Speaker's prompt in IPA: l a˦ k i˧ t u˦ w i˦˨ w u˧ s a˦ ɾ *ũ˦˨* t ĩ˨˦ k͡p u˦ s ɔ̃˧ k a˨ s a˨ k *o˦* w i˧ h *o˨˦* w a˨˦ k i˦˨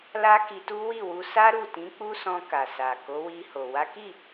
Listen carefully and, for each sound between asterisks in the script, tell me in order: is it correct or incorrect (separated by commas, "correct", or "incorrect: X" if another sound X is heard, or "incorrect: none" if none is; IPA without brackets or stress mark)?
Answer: incorrect: u˦˨, incorrect: o˨˦, incorrect: o˨